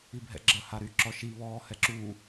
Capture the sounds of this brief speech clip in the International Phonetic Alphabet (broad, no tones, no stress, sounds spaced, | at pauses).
i bʱ ɛ̰ ɡ͡ǁ ə h a ɾ y ǁ ɔ ʃ i β ɔː h ɛ ǁ uː